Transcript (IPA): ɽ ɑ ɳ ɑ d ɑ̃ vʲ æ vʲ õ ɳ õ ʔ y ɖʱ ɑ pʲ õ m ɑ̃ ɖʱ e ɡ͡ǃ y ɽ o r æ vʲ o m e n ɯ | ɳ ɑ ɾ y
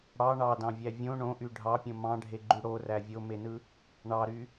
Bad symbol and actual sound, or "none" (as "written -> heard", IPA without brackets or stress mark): none